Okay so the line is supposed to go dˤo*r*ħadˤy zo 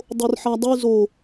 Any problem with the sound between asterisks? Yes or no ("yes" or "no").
no